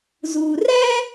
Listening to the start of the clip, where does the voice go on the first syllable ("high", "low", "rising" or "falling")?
low